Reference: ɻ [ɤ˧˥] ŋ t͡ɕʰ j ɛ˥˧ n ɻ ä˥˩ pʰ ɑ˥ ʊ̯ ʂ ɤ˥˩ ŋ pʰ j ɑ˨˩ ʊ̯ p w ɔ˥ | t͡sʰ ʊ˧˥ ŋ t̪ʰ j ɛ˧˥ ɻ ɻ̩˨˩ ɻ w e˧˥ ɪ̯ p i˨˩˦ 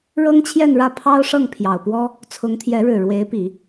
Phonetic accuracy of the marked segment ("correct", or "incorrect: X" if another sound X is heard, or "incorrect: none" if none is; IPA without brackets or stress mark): incorrect: ɤ˥